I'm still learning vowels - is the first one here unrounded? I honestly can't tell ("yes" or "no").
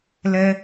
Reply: yes